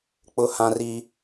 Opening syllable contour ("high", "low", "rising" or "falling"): high